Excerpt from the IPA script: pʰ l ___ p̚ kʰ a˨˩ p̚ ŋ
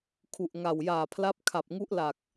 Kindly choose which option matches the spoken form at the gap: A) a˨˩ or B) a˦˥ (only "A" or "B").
B